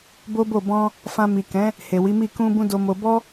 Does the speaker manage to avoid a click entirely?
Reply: yes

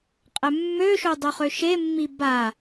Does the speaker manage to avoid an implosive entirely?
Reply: yes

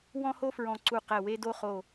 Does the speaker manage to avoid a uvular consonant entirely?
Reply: no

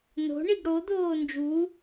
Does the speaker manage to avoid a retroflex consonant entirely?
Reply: no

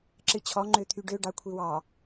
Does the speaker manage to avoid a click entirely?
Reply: no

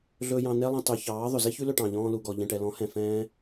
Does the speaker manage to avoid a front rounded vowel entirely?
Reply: yes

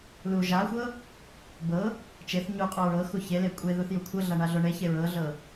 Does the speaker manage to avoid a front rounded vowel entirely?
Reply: yes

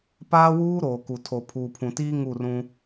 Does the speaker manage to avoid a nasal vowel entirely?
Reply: no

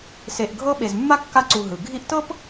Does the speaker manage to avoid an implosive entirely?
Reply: no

